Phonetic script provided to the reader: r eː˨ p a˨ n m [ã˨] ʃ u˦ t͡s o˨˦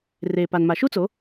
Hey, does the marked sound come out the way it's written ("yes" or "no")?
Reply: no